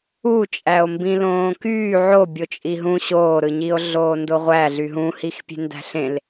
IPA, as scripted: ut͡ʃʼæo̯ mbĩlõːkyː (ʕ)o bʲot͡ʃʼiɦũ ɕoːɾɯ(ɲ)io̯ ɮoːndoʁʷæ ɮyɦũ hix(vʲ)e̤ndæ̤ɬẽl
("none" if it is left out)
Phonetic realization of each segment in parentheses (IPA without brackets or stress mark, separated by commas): ʕ, ɲ, pʲ